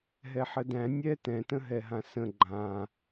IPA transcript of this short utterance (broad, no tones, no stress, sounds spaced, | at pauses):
ɦ ɛ ħ ə d æ̃ nʲ ɛ t ɛ̃ t ə̃ ɦ ɛ ɦ ã s ə̃ ɡ͡ǃ ã